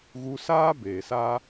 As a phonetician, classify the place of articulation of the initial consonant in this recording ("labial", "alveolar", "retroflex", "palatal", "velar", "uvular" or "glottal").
velar